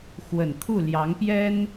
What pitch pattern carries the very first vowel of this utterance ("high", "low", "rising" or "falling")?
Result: low